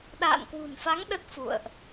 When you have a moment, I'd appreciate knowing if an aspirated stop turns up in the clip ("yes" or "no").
no